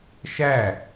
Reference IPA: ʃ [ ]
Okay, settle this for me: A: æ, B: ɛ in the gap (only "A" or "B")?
A